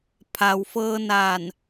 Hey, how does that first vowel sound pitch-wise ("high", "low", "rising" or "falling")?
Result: low